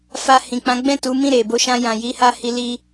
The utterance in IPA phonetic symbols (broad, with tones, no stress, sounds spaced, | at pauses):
f a˧ h ĩ˨ k͡p ã˨˦ ɡ͡b ɛ̃˦˨ t u˨˦ m ĩ˦˨ ɾ e˨ b o˨˦ ʃ ã˧ j ã˨ j i˨˦ h a˧ h i˧ l i˧